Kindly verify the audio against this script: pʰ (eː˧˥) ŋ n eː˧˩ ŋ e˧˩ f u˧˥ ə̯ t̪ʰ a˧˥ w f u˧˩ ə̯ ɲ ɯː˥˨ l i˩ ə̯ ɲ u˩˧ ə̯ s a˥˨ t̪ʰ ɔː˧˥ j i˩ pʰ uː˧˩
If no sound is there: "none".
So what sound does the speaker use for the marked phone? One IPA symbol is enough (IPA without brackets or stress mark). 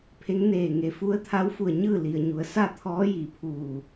e˧˥